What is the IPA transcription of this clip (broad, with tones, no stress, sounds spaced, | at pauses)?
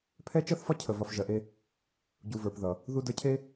pʰ ɛ˦ t͡ʃ ʌ˦ θ f ɒ˦ cʰ ə˨ v ɒ˨ f ʒ ɜ˨ ʔ e˧ | ɟ u˨ v ə˞˨ p ð ʌ˨ | ð u˧ d ə˞˧ cʰ e˦